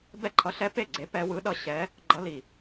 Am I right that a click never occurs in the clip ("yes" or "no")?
no